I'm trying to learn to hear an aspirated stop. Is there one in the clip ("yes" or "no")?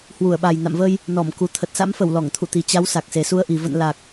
yes